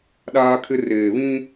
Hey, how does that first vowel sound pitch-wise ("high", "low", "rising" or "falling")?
high